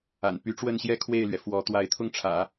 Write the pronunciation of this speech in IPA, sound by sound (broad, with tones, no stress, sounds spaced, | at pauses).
a̰˨˩ n p y˧˥ ʈ͡ʂ w ə˥˩ n ɕ j ɛ˥ kʰ w e˥˩ ɪ̯ l ɥ ɛ˩ f w ɔ˧˥ t̪ w a˧˥ ɪ̯ t̪ʰ ʊ˥˩ ŋ ʈ͡ʂʰ ä̰˨˩˦